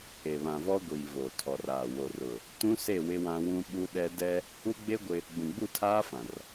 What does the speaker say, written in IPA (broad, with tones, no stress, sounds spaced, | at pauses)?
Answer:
e˨ β ã˨ v ɔ˦ ɡʷ iː˨ v oː˨ tʰ ɔ˨ r aː˨ w o˨ r ʊ˨ | t ũ˦ s e˦˨ w ɪ˦ w ã˦ w ũ˦ ɓ u˦ ɗ ɛ˦ d ɛ˦ | u˦ ɡ͡b e˦ ɡʷ ɪ˦ | ɡ͡b ũ˨ ɡ͡b u˦˨ tʰ aː˦ f ã˨ r